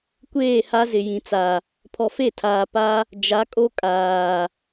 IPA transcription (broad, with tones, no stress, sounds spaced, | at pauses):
kʷ eː˦˨ h a˦ z ɪ˨ j ĩ˨ t͡s a˨ | pʰ ɔ˨ f e˦˨ tʰ aː˨ p a˦ | d͡ʒ a˨˦ kʼ o˦ kʼ aː˨